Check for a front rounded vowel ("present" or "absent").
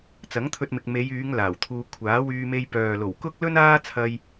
present